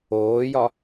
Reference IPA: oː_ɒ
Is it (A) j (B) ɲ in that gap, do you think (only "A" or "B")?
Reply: A